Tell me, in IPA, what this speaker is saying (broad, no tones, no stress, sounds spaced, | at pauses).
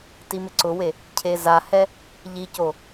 t i m ɪ ǀ ʊ w e | cʰ e z a h ɛ | ʎ i c o